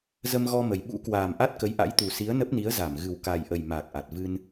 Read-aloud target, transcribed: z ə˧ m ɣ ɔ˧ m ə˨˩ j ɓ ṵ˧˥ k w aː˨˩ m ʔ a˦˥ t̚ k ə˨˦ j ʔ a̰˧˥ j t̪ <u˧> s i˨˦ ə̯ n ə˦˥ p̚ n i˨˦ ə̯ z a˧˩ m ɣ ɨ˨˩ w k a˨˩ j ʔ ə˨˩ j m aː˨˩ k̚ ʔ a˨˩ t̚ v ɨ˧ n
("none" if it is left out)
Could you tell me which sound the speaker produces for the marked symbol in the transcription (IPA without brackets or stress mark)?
u˨˩